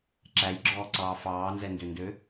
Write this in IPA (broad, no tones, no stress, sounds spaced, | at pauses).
ǁ æ j ɡ͡ǁ ɔː ǀ ɑː f ɑː n z ɛ n d ø n d ø